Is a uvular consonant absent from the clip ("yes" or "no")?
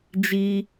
yes